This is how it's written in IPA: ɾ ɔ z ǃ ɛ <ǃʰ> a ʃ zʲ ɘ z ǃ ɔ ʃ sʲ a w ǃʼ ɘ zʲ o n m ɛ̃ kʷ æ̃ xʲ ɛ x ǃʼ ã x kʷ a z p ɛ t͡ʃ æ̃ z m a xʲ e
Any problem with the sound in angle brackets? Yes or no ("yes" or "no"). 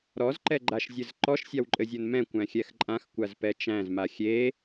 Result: yes